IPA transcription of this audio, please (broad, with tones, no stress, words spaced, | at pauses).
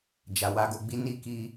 d͡ʒa˨wa˧ɡo˧ ɡ͡bi˦ ni˦˨ ki˧